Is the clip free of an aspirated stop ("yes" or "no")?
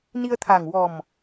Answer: no